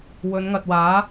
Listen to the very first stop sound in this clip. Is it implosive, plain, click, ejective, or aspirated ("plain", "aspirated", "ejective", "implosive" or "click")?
plain